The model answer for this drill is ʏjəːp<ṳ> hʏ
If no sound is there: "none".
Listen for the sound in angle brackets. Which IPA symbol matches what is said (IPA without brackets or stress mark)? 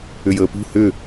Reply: ṳ